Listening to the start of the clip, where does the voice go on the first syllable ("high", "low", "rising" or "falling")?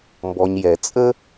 low